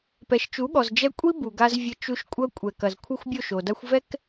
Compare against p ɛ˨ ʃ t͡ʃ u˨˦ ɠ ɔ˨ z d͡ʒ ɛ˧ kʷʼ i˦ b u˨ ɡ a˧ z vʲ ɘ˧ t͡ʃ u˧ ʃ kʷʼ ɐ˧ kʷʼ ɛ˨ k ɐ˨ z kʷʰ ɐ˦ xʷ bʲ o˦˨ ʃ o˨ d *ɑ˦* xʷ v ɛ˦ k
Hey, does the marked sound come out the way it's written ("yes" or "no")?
no